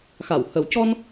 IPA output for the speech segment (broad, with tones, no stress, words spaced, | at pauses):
xa˨˩˨whə˨˩˦wcɔ˧n